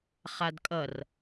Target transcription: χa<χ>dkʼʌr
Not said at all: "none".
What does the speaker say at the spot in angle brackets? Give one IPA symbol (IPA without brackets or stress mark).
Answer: none